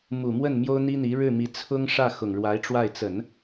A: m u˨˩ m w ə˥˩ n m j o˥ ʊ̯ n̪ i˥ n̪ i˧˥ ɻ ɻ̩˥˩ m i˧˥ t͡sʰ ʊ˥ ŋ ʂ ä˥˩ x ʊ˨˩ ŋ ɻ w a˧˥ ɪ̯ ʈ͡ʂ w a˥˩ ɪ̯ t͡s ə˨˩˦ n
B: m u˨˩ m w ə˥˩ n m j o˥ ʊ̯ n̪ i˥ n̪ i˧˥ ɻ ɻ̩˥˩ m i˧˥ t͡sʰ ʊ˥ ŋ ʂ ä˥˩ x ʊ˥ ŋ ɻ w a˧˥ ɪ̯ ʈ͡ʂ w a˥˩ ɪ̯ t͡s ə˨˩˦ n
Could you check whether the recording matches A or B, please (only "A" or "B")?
A